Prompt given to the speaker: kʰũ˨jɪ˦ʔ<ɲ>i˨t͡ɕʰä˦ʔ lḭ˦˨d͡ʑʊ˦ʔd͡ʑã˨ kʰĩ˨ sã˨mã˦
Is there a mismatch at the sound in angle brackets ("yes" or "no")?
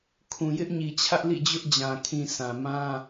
no